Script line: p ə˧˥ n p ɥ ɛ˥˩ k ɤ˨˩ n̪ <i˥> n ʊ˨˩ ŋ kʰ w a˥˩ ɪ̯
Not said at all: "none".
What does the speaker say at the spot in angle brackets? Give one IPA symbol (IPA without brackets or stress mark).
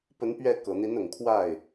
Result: i˧˥